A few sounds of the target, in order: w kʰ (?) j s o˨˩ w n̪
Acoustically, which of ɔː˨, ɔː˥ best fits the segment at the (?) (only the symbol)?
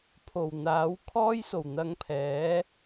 ɔː˥